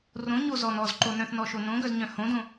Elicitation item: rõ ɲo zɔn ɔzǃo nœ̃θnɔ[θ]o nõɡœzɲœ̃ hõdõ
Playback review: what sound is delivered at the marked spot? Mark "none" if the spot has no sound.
ʃ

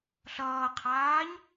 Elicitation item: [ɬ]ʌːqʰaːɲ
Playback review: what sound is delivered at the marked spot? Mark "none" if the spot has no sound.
ɬ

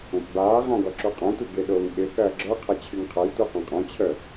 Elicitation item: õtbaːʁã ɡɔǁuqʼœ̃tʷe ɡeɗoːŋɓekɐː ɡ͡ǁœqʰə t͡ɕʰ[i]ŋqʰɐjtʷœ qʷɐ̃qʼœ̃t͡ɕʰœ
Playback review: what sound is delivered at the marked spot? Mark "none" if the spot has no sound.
y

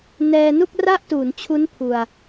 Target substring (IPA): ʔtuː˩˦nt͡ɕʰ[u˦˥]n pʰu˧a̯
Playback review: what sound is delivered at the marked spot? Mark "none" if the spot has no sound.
u˦˥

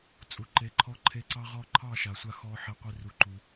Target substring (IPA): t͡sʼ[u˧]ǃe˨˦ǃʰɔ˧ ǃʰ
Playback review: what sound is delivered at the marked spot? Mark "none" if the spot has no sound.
u˨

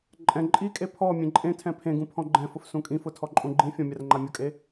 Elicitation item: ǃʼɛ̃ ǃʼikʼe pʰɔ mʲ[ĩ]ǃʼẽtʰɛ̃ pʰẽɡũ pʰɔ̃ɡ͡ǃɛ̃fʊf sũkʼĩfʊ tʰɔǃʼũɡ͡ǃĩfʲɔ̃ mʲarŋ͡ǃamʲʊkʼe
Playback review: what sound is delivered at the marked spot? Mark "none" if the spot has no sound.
ẽ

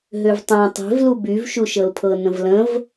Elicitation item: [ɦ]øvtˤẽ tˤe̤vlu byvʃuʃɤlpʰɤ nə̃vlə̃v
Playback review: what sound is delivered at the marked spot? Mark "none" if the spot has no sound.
ɦ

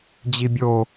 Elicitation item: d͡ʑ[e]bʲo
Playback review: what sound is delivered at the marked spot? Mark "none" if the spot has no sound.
i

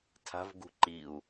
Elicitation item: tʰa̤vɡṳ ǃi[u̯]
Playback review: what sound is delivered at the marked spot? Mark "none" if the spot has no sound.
u̯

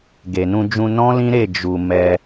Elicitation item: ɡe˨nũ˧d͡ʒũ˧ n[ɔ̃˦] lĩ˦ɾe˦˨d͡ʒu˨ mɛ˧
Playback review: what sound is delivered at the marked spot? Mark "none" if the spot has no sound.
ɔ̃˦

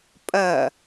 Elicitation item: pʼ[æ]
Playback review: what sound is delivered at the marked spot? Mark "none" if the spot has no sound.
ɐ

